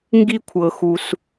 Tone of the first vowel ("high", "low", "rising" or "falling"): high